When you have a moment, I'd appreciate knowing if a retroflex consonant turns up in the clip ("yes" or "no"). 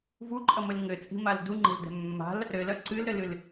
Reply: no